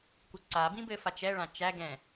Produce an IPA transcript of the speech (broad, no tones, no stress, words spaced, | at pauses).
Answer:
kʷɪǀabĩ bɘfat͡ʃɛɭã t͡ʃæɡɛ̃